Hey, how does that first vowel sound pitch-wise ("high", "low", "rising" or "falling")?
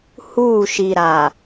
falling